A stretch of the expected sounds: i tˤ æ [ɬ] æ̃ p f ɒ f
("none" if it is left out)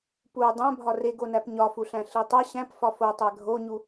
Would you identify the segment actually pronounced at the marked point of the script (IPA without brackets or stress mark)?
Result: ɕ